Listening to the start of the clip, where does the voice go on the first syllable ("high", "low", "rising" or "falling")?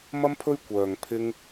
high